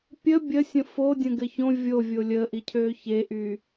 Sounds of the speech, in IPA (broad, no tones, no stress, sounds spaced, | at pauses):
pʲ ə bʲ ə sʲ ə̃ f o dʲ ə̃ ɡ ɘ ç õ vʲ o vʲ o lʲ əː ʔ i cʰ øː ç e ʔ y